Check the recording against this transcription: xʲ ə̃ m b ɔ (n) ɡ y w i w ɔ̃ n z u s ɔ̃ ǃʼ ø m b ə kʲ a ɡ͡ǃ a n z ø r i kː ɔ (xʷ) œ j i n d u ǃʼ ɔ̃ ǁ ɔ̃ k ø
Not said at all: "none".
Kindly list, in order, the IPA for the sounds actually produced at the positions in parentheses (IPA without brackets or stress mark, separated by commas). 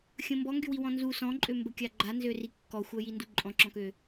ŋ, xʷ